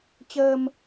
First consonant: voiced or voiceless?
voiceless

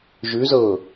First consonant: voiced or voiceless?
voiced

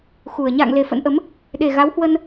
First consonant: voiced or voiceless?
voiceless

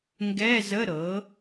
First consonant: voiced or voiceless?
voiced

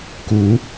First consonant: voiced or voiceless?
voiceless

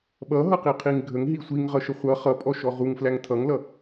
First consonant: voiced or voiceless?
voiced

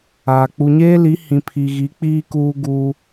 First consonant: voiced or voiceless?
voiceless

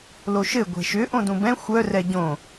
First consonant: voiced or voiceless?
voiced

